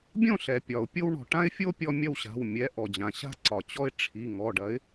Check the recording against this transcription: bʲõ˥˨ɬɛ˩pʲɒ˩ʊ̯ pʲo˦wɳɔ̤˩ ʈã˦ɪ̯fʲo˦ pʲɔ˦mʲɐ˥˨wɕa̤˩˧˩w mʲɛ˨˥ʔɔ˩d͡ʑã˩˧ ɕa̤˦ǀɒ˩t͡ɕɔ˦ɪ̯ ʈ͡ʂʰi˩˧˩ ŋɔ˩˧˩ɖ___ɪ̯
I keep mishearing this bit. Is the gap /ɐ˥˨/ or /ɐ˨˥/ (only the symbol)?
ɐ˨˥